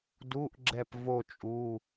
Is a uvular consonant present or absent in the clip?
absent